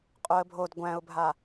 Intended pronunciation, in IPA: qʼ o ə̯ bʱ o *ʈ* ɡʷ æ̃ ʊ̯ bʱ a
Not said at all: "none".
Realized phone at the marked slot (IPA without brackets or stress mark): d